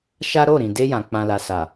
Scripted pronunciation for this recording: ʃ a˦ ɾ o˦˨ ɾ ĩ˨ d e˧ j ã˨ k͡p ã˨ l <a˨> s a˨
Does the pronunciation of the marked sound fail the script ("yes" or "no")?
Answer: no